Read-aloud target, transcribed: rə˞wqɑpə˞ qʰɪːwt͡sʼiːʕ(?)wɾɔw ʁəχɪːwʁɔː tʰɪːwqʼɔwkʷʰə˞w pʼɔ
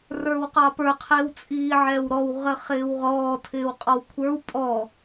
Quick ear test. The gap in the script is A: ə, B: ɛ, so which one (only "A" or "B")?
B